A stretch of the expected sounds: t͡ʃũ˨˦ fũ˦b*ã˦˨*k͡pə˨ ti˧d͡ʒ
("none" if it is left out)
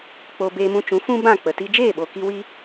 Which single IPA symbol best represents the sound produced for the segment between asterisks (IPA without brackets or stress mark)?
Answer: ã˦˨